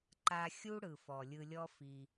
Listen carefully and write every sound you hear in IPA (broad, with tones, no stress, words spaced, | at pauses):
ǃa˧xʲu˦ɽɯ˨ fɔ˨lʲɯ˧lʲɔ˦fi˧